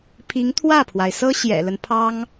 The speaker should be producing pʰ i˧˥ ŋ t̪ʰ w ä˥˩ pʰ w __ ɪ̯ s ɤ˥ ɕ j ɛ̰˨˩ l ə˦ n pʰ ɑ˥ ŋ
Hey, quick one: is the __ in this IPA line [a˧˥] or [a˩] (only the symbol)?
a˩